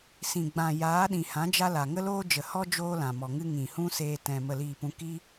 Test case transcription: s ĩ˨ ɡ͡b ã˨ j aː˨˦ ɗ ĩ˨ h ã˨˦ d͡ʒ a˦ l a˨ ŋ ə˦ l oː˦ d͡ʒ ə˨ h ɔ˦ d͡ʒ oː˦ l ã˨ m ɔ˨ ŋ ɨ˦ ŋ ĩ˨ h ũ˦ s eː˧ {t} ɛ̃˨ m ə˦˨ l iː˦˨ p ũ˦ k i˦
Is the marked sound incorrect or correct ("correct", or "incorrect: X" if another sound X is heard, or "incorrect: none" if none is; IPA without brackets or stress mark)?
correct